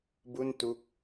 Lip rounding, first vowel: rounded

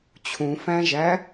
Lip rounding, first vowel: rounded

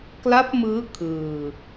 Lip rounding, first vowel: unrounded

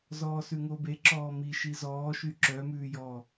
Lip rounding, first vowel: rounded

